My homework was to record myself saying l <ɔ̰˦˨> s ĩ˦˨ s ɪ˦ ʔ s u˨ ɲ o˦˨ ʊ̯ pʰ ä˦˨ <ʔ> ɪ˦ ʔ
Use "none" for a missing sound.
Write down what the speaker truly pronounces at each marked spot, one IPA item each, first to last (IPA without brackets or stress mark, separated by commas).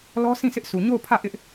ɔ˦, ʔ